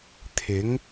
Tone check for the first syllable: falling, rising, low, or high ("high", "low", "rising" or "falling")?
rising